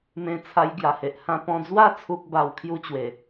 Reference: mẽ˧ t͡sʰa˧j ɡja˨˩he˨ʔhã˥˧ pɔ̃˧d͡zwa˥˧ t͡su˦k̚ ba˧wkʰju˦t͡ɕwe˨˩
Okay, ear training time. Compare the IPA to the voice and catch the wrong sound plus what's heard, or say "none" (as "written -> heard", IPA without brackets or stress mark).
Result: t͡s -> t͡sʰ